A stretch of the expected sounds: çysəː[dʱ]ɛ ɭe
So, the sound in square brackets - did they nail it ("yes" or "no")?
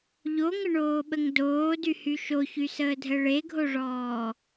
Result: yes